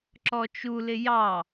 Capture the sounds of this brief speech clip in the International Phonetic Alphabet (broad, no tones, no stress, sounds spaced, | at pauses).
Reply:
ǁ ɔ t͡ʃ u l ɪ j ɑ